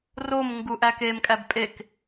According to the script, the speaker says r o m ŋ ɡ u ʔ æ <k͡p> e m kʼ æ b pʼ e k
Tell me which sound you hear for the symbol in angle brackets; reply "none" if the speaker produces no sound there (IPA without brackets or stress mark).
k